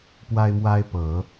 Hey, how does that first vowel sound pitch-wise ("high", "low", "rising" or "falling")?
high